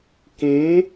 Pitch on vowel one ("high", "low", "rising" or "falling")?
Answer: rising